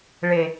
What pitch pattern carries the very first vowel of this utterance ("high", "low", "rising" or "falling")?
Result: low